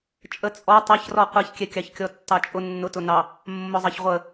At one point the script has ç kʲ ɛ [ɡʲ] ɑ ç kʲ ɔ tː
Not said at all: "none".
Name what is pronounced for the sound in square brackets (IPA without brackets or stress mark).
kʲ